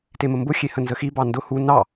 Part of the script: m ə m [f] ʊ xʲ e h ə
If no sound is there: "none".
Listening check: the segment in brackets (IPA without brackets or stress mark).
b